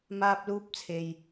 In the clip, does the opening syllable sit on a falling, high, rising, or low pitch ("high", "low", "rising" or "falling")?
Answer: high